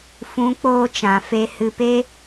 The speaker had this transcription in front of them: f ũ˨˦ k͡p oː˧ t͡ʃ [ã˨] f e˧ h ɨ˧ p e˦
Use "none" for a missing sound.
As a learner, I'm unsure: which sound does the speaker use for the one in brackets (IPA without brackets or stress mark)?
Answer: ã˨